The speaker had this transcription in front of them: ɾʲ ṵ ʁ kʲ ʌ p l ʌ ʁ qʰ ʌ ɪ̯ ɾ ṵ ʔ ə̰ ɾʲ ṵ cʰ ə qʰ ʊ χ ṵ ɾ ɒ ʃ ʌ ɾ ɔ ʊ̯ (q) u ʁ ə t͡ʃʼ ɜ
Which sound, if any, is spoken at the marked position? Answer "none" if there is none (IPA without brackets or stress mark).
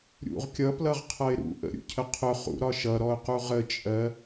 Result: q